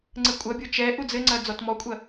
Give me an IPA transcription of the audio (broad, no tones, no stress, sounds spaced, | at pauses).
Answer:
ŋ͡ǀ ɘ kʷʼ ɐ bʲ o t͡ʃ ɛ ʔ u d͡z ɘ ŋ͡ǀ ɐ d͡z ɔ t m ɔ kʷʼ ɐ